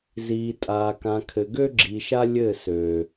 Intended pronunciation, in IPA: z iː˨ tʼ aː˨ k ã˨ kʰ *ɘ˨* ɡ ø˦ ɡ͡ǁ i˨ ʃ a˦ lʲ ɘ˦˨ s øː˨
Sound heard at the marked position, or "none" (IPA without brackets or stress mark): ɘ˨